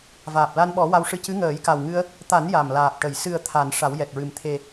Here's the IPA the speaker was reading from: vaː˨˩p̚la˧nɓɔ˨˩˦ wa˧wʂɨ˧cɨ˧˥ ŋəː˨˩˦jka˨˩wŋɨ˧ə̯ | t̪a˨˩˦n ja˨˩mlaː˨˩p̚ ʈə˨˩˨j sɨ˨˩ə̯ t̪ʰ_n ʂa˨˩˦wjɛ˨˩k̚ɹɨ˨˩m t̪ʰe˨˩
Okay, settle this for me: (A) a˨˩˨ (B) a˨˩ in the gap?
A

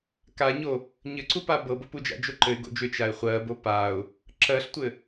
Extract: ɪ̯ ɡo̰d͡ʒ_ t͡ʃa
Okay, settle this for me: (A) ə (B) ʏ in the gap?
B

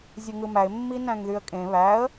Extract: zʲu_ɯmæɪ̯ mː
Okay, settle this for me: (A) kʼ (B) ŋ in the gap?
B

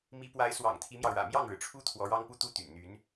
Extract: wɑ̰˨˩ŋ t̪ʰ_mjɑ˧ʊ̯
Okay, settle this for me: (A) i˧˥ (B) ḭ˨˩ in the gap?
A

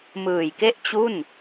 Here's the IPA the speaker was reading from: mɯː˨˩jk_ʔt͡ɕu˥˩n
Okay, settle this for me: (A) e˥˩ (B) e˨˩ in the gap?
A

